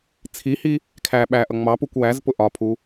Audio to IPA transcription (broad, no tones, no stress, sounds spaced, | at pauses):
t͡sʰ i h i | kʰ æ ɓ æ ʔ ʌ ŋ͡m ɑ p u kʷ w æ z p ʊ ʔ ɒ pʰ u